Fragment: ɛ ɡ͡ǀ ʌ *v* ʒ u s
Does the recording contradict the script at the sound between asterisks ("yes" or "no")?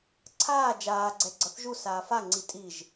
yes